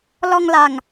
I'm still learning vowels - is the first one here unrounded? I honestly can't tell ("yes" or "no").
no